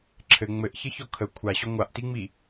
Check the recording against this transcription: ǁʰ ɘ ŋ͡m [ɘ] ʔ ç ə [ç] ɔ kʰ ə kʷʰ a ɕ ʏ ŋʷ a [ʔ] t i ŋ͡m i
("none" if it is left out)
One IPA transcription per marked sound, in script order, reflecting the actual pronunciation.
ɘ, ç, ʔ

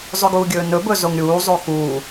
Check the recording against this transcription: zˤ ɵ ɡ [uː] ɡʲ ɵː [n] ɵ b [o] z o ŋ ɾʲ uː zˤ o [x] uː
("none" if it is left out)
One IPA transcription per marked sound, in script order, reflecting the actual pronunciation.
uː, n, ɵ, x

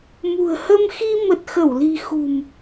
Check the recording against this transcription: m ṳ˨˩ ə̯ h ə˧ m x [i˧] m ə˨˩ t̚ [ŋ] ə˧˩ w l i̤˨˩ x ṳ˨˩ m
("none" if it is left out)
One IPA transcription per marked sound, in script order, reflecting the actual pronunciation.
i˧, x

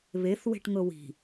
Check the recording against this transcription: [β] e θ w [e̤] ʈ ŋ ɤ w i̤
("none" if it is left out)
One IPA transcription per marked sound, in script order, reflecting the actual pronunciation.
β, e̤

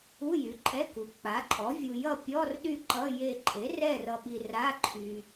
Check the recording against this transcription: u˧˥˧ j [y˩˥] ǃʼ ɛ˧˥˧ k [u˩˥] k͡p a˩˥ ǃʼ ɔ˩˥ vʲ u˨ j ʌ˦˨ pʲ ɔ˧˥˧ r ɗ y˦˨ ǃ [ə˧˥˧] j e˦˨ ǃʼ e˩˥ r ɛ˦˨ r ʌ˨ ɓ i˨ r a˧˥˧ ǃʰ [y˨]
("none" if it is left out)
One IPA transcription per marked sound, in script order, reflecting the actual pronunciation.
y˩˥, u˩˥, ʌ˧˥˧, y˨

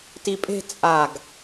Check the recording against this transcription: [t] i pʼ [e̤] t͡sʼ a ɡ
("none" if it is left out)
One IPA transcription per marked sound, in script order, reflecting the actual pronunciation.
t, e̤

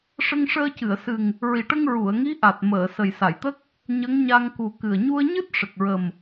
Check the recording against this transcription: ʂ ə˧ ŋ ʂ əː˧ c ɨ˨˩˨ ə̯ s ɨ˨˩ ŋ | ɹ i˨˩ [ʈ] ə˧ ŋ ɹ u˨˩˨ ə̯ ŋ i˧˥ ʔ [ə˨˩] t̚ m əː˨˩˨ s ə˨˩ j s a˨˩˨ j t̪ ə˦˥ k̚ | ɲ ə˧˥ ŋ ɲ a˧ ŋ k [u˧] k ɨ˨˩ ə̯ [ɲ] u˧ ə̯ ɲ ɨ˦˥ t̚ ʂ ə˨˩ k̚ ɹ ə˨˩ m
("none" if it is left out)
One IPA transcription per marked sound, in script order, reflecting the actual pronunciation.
ʈ, a˨˩, u˨˩, ɲ

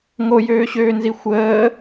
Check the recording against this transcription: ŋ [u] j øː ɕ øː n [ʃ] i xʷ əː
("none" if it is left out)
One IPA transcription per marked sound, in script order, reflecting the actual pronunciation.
o, z

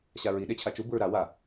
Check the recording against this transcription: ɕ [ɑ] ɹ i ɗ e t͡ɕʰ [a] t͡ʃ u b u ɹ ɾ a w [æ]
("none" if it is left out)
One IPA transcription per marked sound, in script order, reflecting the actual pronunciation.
a, a, a

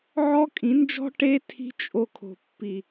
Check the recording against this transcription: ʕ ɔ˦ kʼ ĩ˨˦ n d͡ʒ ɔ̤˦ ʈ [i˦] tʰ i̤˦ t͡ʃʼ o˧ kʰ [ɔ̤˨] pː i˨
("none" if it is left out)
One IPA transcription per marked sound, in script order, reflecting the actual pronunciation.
e˦, o̤˨

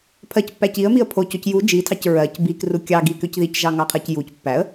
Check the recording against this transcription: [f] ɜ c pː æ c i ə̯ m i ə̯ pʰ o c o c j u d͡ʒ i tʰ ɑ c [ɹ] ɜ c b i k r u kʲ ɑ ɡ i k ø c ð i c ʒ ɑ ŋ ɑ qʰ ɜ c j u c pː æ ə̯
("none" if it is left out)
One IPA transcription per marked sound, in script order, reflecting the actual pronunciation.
pʰ, ɹ

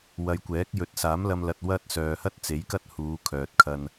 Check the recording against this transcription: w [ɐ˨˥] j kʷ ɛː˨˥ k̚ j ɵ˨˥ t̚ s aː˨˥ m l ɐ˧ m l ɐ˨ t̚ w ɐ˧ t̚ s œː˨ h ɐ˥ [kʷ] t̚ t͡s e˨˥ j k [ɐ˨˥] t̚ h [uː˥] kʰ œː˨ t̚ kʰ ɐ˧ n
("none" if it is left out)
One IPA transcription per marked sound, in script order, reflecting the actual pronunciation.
ɐ˨˧, none, ɐ˥, uː˨˧

